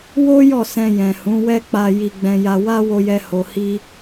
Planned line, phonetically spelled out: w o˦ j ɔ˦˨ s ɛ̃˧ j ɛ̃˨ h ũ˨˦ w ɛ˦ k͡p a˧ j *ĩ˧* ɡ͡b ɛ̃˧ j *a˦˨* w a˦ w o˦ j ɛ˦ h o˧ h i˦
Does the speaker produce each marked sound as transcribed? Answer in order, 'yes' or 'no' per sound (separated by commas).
no, no